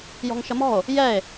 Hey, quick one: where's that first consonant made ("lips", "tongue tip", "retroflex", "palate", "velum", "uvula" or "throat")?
palate